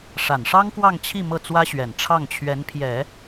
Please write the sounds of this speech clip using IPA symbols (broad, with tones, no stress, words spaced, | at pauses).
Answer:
ʂa˨˩nʂɑ˥ŋkwɑ˥˧ŋt͡ɕʰi˥˧ mɤ˥˩t͡swä˥ɕɥɛ˨˩n ʈ͡ʂʰɑ˥˩ŋt͡ɕʰɥɛ˧˥npʰjɛ˨˩˦